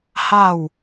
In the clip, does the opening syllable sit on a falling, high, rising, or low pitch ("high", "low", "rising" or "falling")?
falling